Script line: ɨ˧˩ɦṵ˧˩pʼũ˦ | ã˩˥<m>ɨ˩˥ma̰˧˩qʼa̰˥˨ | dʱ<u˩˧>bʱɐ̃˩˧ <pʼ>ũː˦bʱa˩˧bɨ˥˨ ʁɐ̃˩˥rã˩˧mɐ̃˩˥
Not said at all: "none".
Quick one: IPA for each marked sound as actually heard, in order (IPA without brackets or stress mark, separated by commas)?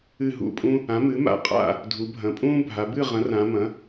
m, u˩˧, pʼ